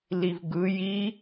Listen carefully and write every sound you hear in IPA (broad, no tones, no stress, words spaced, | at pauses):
livɡɯ ji